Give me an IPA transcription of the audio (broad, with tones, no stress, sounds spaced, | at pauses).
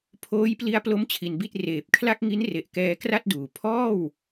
pʰ oː˦˥ j p l i˦˥ a̯ p l o˦˥ m t͡ɕʰ i˧ n b i˥˩ t̚ r eː˨˩ p̚ kʰ l a˥˩ k̚ ŋ i˦˥ n r e˨˩ ʔ k ɛː˧ k r a˥˩ t̚ d uː˩˦ pʰ ɔː˥˩ w